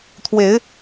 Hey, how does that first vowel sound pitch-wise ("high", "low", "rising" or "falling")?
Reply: rising